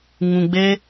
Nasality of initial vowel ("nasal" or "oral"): nasal